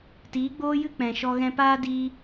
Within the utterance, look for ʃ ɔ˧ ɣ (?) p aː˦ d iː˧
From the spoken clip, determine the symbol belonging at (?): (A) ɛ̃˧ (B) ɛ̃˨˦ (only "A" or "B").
A